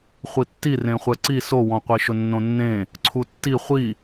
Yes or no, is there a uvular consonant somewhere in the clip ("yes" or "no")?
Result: yes